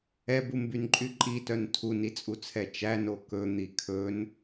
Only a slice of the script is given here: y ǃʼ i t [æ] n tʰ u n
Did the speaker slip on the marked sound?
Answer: yes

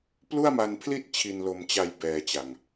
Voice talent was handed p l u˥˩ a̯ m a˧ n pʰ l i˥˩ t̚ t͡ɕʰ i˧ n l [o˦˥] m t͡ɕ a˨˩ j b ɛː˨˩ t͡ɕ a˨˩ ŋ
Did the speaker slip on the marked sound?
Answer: yes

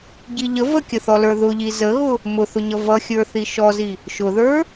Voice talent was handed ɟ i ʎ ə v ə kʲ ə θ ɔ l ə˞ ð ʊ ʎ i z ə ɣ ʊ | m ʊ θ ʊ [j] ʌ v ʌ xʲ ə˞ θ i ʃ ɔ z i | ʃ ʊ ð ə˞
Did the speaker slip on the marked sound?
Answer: yes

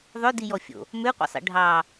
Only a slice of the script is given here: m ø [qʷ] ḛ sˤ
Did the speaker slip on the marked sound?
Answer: no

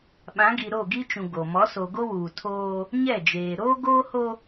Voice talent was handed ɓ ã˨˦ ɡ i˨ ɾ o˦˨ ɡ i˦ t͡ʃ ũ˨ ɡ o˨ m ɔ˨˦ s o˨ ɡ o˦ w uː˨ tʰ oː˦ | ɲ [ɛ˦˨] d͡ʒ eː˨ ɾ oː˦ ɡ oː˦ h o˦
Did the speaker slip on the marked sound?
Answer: no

